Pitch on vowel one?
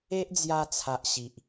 high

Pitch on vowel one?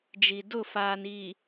low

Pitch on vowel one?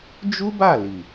high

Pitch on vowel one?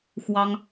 high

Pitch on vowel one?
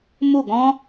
falling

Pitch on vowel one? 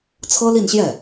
high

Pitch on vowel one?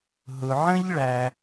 low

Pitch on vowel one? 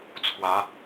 rising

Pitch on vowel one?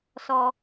low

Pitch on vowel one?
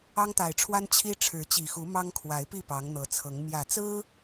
high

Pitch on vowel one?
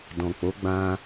low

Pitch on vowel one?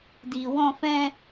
low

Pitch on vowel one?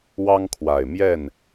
high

